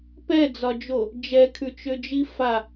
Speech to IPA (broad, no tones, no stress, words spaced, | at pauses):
pɛd͡zɒd͡ʒo | d͡ʒɛkʰʉt͡ʃød͡ʒi fa